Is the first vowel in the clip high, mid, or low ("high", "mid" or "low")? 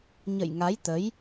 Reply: mid